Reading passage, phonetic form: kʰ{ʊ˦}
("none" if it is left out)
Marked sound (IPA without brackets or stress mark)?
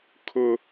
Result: ʊ˦